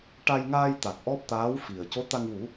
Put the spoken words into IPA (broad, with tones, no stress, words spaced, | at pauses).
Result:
ʈa˧jŋaː˧j t̪a˨˩k̚ʔɔ˦˥p̚t̪aː˧˥w fi˨˩ə̯ co˧˥t̪a˧ŋ wu˨˩˦